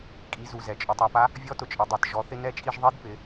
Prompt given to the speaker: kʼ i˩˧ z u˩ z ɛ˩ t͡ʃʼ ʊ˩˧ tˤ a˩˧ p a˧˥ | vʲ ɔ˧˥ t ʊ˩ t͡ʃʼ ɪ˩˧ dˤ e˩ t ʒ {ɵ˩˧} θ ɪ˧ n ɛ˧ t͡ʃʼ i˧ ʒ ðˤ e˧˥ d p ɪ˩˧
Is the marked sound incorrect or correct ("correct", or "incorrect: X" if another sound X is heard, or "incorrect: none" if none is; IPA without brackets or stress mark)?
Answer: incorrect: ɔ˩˧